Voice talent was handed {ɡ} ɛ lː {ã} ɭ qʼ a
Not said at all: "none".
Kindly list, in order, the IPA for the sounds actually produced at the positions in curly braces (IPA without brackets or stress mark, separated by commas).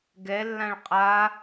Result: ɡ, ã